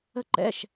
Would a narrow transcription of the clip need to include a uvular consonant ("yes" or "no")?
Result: no